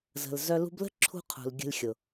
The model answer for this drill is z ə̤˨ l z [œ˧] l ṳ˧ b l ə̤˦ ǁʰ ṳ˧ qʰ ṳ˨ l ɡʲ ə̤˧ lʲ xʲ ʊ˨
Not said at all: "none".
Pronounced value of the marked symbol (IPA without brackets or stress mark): œ˧